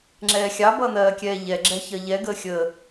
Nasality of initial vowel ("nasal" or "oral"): oral